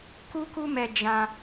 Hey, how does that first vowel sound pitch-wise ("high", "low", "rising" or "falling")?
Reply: high